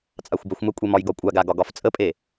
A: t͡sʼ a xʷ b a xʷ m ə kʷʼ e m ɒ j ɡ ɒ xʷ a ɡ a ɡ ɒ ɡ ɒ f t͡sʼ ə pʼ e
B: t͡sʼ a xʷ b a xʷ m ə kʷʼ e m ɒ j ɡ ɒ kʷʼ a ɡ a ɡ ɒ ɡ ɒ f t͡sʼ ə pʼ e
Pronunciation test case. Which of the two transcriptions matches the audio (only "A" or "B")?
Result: B